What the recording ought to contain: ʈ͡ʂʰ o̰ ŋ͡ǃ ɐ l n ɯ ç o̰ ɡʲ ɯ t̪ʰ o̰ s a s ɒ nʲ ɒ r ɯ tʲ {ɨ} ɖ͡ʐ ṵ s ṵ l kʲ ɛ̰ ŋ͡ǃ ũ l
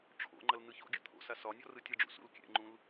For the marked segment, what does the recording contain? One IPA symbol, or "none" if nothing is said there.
ɨ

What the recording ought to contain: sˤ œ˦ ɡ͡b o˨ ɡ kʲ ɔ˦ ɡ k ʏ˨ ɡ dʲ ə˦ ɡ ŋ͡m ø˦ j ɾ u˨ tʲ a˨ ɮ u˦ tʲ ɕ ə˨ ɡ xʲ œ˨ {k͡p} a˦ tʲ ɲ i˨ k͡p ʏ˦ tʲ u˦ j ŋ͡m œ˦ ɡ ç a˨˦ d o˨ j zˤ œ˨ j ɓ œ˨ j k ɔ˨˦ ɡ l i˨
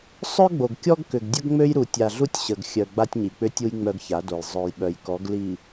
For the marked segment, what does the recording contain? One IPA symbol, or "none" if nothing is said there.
ɡ͡b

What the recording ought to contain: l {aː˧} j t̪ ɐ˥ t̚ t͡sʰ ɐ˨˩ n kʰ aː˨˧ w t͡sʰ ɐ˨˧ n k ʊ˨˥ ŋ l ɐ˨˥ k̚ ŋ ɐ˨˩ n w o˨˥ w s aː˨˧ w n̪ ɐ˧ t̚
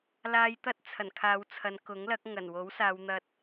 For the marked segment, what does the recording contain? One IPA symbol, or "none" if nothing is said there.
aː˧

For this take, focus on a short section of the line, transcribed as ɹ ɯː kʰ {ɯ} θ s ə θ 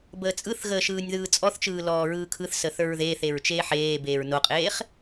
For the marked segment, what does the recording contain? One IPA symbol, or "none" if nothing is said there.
ɯ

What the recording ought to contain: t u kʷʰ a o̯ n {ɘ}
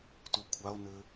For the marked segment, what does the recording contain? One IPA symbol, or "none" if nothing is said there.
ɘ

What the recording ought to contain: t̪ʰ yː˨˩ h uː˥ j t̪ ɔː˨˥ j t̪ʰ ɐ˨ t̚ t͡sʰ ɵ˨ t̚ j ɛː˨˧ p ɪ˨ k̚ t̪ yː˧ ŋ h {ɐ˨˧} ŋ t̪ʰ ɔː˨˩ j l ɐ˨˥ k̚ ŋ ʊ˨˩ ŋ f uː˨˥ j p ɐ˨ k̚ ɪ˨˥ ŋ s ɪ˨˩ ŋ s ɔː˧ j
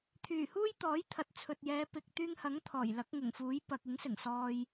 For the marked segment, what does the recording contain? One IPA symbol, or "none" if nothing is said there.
ɐ˨˥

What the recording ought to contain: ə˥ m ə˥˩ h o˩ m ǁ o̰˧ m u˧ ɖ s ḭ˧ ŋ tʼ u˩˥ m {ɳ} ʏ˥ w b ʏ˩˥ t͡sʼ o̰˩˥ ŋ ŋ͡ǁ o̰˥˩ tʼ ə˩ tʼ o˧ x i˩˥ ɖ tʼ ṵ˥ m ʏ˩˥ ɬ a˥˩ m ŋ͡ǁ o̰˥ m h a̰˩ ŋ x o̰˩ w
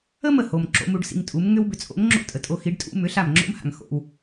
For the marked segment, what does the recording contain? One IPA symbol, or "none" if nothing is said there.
ŋ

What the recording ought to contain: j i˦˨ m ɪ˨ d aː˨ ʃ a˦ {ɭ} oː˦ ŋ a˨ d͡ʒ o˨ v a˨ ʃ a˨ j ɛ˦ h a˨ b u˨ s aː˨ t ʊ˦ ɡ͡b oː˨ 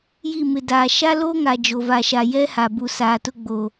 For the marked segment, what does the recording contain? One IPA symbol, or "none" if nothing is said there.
l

